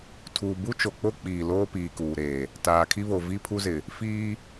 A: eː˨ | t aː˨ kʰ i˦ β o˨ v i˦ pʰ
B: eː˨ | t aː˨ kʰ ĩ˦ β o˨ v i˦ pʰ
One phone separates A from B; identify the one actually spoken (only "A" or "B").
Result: A